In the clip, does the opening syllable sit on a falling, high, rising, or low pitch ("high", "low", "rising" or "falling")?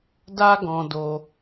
high